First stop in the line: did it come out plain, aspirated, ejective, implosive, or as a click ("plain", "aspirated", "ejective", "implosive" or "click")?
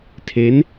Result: aspirated